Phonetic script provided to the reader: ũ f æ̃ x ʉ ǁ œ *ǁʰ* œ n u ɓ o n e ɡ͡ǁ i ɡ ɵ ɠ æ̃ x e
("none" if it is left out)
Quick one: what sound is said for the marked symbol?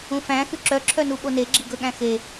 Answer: ǁʰ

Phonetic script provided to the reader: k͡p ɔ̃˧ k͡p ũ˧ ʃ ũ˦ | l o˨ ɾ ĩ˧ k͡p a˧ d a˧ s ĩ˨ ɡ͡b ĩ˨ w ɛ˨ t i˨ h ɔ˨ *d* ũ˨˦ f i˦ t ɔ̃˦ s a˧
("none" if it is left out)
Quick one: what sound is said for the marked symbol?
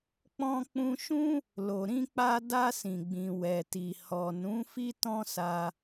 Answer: n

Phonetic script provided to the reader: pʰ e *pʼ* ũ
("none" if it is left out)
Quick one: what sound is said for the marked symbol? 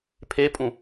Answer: pʼ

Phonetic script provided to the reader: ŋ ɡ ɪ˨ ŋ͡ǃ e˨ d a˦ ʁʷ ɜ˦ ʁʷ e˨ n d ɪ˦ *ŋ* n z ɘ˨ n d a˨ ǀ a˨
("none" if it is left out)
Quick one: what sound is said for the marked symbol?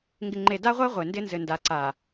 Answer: none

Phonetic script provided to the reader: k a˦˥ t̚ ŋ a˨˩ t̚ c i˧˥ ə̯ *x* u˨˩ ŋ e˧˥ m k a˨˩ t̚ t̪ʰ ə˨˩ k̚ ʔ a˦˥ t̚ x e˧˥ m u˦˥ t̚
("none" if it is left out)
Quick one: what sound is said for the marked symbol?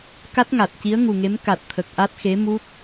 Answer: ŋ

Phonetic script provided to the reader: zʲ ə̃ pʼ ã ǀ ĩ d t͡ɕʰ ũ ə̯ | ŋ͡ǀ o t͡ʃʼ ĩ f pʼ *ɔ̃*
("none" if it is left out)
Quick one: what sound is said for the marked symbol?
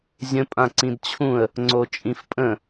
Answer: ə̃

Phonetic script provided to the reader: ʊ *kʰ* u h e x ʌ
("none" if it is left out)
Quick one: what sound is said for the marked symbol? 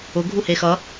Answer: ɡʱ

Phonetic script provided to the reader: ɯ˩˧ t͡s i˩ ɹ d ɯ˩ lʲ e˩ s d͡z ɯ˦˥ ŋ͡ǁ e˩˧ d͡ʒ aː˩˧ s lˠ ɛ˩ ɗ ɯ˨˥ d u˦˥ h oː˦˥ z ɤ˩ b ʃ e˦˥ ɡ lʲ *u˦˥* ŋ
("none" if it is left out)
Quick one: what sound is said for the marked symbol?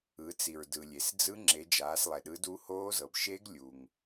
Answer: u˩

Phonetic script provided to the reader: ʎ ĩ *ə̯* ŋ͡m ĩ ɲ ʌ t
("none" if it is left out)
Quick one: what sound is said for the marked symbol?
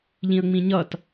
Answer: ə̯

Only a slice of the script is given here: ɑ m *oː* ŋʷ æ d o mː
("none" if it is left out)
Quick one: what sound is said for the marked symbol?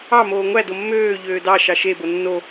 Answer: oː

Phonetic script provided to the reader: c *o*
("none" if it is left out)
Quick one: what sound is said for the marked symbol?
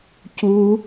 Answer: u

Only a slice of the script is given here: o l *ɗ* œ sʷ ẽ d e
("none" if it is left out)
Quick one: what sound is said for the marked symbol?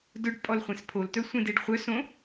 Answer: t̪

